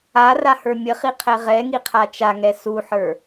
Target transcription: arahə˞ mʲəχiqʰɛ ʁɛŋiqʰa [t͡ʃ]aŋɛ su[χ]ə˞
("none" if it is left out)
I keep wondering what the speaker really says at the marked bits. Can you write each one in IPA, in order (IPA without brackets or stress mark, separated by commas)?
t͡ʃ, ħ